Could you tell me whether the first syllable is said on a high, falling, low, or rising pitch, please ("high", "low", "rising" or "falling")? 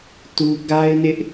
high